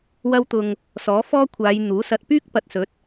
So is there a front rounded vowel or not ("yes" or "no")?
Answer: yes